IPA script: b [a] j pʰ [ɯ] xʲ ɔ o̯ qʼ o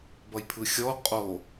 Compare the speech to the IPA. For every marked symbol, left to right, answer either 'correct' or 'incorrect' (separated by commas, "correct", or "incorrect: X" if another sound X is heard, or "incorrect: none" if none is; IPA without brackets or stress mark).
incorrect: ʌ, correct